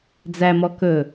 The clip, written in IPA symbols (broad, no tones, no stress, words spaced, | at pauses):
d͡zæmɔ kɵ